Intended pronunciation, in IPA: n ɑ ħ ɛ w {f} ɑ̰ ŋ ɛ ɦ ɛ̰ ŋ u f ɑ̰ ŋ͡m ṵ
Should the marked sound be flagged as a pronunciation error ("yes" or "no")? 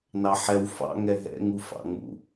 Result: no